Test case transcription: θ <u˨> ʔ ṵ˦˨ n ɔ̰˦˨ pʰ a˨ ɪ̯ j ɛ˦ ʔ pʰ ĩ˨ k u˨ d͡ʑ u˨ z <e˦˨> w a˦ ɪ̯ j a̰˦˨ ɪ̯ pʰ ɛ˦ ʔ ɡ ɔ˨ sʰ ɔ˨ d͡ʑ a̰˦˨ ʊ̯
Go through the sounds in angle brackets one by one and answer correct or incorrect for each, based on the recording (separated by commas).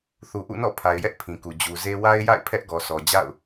correct, incorrect